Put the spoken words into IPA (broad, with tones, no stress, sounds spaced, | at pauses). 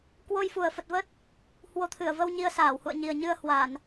k w o˧ j f u˨˩ ə̯ f ə˨˩ t̚ v ə˦˥ t̚ | h w o˨˦ t̪ʰ ɨ˧˩ ə̯ v ə˧ w ɲ i˧ ə̯ s aː˧˩ w h ṵ˧˨ ə̯ ɲ i˨˩ ə̯ ɲ ɨ˧ ə̯ h w a˧˩˨ n